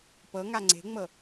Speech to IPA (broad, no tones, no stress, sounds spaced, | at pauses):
p ɤ ŋ a ŋ͡ǀ e̤ ŋ͡m ɤ